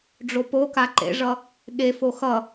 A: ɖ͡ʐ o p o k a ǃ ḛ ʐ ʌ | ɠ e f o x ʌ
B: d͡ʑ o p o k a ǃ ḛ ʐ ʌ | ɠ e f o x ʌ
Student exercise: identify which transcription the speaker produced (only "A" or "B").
A